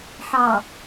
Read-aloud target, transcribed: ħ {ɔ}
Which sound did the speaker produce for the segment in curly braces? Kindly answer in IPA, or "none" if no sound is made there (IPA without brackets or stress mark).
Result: ɑ